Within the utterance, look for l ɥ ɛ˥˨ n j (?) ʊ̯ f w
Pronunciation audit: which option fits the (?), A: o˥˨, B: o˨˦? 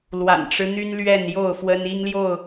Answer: A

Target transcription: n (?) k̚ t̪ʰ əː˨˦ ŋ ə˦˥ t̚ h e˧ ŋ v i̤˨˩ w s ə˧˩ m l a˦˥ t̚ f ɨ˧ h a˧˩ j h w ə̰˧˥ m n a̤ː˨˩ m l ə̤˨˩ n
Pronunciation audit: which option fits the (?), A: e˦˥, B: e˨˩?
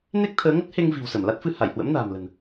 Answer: A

